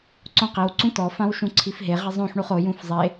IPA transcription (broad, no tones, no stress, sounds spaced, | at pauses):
ǀ õ q i w ǀ ũ t ɔ f ã w ʃ ũ ǀʰ i f ɦ e ʁ ɪ zˤ õ ħ ɳ u χ o j ũ f zˤ e